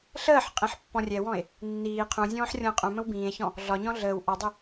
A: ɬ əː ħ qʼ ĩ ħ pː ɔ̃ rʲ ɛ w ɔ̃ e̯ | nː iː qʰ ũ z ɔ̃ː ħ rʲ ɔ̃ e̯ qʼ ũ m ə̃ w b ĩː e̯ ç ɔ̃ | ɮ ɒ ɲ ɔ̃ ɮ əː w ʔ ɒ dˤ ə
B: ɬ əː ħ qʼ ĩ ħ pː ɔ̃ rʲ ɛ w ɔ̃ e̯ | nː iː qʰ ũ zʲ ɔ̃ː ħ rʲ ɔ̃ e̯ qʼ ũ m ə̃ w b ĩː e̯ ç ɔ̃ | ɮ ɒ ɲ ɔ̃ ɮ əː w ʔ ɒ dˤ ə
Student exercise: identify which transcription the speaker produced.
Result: B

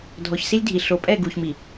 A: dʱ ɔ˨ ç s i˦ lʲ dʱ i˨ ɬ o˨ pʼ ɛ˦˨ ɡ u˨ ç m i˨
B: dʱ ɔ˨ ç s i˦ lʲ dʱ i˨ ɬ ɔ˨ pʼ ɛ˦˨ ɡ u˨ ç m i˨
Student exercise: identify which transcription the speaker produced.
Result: A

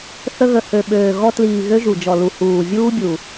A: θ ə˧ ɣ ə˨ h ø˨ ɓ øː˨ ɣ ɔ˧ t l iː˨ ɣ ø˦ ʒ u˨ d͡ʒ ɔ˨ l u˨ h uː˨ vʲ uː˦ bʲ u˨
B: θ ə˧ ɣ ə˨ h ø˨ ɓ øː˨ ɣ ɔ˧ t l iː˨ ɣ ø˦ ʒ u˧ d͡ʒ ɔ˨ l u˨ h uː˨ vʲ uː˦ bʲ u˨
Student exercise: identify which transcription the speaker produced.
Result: A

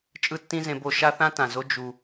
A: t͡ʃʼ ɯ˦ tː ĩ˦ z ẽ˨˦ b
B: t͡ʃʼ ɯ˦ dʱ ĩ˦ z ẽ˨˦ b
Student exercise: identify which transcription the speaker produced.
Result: A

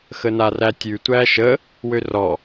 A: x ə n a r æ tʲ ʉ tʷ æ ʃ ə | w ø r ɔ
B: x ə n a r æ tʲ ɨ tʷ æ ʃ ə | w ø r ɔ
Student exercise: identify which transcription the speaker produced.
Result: A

